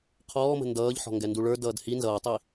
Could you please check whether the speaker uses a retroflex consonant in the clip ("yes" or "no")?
yes